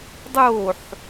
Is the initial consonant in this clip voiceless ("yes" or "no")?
no